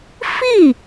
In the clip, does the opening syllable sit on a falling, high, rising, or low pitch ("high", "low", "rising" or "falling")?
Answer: falling